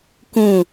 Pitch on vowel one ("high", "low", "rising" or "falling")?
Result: falling